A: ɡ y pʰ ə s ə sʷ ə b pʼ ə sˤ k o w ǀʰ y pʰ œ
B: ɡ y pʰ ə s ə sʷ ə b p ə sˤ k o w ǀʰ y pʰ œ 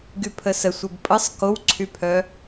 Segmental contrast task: A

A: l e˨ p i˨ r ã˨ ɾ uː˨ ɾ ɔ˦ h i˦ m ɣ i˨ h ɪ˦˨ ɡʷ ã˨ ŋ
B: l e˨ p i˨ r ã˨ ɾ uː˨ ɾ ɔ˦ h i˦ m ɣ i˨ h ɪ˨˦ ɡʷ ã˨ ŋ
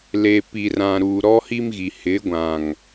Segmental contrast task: B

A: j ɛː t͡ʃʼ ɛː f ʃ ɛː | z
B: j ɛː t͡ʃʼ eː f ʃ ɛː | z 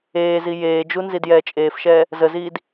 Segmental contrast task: B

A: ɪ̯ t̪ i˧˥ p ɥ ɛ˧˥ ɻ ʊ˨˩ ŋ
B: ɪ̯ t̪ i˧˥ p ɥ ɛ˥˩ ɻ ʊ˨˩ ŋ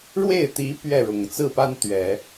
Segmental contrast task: B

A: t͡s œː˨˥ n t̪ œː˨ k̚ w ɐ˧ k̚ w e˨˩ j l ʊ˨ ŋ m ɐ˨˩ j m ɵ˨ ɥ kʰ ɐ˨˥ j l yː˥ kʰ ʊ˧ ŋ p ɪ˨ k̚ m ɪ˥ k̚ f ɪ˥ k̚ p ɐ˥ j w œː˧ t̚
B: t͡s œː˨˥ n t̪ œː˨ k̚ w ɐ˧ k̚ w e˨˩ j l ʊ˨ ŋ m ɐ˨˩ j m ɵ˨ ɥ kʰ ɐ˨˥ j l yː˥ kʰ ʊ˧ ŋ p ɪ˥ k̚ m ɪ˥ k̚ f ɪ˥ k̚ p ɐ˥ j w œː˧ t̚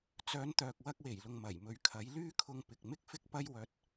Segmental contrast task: A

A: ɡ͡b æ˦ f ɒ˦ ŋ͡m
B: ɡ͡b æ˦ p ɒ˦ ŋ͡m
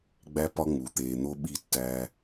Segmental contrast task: B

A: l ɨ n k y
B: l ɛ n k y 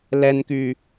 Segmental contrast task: B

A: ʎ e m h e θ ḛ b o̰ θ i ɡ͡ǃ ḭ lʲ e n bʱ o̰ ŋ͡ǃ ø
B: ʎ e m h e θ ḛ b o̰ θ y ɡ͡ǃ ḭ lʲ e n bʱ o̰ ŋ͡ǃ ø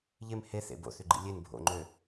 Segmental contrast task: B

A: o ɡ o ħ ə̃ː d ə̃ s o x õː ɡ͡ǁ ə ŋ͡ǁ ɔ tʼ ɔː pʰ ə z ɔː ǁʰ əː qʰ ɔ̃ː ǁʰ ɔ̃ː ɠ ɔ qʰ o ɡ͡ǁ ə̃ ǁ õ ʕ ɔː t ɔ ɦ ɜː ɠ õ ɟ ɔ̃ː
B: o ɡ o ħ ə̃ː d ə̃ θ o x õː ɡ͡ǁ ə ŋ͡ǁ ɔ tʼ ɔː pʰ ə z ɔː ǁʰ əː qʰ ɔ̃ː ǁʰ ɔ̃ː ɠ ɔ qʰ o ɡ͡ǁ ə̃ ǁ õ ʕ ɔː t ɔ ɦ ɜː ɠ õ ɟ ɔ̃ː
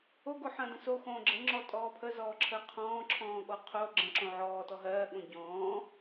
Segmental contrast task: A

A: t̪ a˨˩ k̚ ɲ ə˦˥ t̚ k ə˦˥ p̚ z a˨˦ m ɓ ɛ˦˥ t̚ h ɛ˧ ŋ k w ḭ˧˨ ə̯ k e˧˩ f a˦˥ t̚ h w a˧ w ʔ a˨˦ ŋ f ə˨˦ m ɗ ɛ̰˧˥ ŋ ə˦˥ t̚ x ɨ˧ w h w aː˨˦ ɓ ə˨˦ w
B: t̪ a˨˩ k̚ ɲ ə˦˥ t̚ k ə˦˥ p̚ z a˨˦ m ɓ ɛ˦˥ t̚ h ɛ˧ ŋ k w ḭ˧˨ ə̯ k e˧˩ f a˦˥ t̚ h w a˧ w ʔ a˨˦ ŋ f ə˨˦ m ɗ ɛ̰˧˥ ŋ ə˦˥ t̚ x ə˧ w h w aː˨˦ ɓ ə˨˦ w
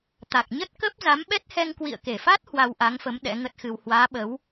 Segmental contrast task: A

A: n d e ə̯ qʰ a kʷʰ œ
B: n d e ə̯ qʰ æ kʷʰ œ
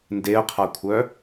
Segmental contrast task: A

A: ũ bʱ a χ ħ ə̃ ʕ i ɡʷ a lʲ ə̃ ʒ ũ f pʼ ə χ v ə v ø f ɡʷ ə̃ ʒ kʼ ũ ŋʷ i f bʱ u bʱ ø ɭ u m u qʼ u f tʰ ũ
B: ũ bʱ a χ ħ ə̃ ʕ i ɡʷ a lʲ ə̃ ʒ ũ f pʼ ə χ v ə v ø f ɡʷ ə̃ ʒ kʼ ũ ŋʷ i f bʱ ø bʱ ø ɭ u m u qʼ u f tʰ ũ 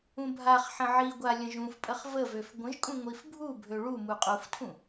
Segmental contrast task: A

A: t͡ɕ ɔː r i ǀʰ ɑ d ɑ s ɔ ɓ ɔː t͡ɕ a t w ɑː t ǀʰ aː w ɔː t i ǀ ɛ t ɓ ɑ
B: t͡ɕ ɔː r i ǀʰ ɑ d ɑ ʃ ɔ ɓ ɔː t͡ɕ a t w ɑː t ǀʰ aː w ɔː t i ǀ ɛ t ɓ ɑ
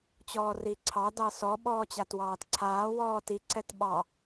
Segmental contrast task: A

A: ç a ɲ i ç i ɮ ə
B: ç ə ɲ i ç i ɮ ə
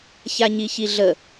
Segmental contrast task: A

